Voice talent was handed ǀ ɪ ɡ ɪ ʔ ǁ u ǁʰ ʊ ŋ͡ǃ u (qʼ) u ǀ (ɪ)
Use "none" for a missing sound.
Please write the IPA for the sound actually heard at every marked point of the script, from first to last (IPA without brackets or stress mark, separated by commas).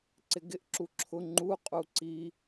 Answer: qʼ, i